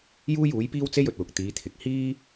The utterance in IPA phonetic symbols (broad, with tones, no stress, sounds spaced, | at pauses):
j uː˥ j uː˨˥ j p iː˥ w t͡s e˥ j ɵ˨ t̚ w ʊ˨ k̚ t̪ iː˨˧ t̪ʰ ɪ˨ k̚ h iː˥